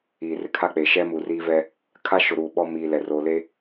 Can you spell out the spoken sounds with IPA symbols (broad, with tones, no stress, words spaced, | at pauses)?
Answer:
iː˨rɪ˦kʰa˦k͡peː˨ ʃɛ˦mu˨riː˦vɛ˦ | kʰa˦ʃʊ˨ɾuː˨ ɓɔ˦ miː˨lɛ˨ ro˨le˦